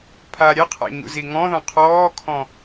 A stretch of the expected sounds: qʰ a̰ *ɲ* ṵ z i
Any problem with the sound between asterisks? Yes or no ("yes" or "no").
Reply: no